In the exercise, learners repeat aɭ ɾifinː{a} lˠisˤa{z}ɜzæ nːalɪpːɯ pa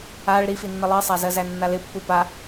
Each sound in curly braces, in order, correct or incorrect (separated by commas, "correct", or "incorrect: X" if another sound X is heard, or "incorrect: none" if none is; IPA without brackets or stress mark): incorrect: ə, correct